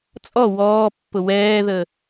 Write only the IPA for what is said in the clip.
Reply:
t͡sʼɔ wɔːpːʊ wɛːðəː

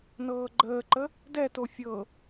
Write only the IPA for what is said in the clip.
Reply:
nɤːɡ͡ǃəːǃə | dɛto fʲɤ

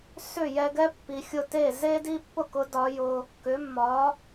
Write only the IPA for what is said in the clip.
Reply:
sʏ˥˩jɛ˧ɡɛ˥ pːi˩xʲʊ˥˩ te˥˩ze˥ di˥pːʊ˥kʊ˩˥ dɒ˩˥jʊ˧ | kʏ˩˥mːɒ˩˥

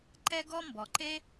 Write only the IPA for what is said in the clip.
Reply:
ǃɛ˥ɡɔ˥mbɔ˩ǃe˥

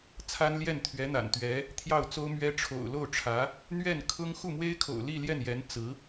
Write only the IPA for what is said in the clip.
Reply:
t͡sʰa˥nljɛ˥˩n t̪ʰɥɛ˧˥n̪a̰˨˩nt̪ɥɛ˧˥ | t̪ʰjɑ˥˩ʊ̯t͡so˥ʊ̯mɥɛ˥ ʈ͡ʂʰo̰˨˩ʊ̯lo˥˩ʊ̯ʈ͡ʂʰä˧˥ | n̪ɥɛ˥˩nkʰʊ˥ŋ xu˥˩mwe˥ɪ̯kʰo̰˨˩ʊ̯ li˥˧ljɛ˥˩njɛ˧˥n t͡sɹ̩˧˥

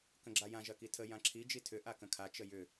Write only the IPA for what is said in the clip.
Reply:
kə̃ɡ͡ǁajã ʒɐkitʰə jãǁʰi d͡ʒitʰʏ ʔakə̃kʰa t͡ʃəjʏ

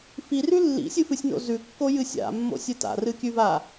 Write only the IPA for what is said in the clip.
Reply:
firʉ lːḭsʲɨfɨsʲno̰ zʉkːojɨ sʲa̰mːo̰sʲɨ ta̰rɨkʲʉva

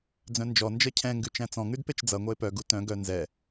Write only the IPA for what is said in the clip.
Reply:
d͡zœ̃nd͡ʒɔ nd͡ʒʌcʰɛ̃ ŋɡʉt͡ʃæ̃t͡sɔ̃ ŋʉdpet͡ʃd͡zʌ ŋʷʌe̯pœ ɡutœ̃ ɡœ nzɛ

